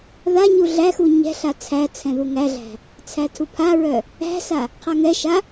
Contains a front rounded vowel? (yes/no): yes